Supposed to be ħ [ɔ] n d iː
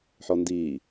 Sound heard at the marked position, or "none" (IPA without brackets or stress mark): ɔ